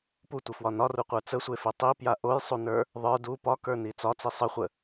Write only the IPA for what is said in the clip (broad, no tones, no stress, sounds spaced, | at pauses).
p u tʷ ə f w ɒ n ɒ r u qʷ ə˞ t͡s ə sʷ e f e tˤ i p j a ʔ o j sˤ u n ə˞ | ðˤ ə˞ d u p ɒ k ə˞ n i t͡s ɒ t͡s i sˤ ə χʷ ə